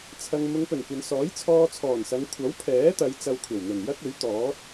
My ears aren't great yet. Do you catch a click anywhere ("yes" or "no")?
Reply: no